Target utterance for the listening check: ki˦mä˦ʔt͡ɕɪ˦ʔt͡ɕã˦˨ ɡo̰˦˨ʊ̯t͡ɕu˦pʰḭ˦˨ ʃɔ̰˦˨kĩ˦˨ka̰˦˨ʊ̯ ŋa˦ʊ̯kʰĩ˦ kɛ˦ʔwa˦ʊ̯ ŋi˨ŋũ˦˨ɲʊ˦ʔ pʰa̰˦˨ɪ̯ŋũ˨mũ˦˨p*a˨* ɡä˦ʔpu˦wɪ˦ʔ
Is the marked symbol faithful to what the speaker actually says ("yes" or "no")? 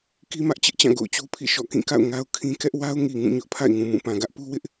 no